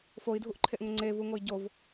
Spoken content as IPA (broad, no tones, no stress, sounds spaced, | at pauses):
f o i̯ dʱ u ʔ ǃʰ e ʔ ŋ ʊ ŋ͡ǀ e v u ŋ o i̯ ɟ o v